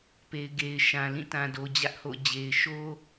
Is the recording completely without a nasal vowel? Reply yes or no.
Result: no